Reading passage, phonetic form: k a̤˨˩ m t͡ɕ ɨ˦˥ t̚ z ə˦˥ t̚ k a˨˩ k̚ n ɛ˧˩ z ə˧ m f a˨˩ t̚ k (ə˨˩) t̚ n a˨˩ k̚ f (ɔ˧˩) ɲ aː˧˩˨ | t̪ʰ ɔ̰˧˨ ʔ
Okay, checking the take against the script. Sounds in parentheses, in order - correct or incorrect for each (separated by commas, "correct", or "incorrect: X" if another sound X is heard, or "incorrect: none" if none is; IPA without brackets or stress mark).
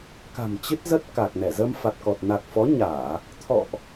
incorrect: ɔ˨˩, incorrect: ɔ˨˦